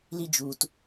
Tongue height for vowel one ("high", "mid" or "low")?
high